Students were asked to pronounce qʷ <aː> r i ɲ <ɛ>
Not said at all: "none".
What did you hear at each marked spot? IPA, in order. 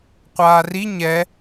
aː, ɛ

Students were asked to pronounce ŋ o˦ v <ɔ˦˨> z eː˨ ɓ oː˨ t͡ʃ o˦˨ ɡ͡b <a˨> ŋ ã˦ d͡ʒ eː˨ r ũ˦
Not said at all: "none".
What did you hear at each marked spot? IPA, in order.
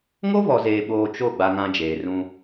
ɔ˨, a˦

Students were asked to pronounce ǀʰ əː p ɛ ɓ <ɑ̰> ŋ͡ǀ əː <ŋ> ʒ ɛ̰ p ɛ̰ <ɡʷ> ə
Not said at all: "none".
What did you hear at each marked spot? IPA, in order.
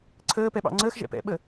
ɑ̰, x, ɓ

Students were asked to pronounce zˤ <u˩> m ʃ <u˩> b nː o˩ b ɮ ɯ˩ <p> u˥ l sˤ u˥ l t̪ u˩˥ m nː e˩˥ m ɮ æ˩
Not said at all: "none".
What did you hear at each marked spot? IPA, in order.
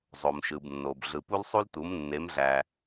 o˩, ɯ˩, p

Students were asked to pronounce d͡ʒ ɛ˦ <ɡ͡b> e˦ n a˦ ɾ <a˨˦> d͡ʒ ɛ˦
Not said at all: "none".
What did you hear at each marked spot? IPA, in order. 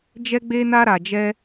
ɡ͡b, a˧

